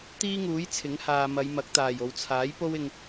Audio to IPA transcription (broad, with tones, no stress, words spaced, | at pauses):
t̪iː˥ŋuː˨˥j t͡sʰɪ˨˥ŋhaː˨ mɐ˨˧jmɐ˨˥k̚t̪aː˨˩j o˨wt͡sʰaː˨˥j po˥wɪ˧ŋ